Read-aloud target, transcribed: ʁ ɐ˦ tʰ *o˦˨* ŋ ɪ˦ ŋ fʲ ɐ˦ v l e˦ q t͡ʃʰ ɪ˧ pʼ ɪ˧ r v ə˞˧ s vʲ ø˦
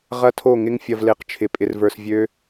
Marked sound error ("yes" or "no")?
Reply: no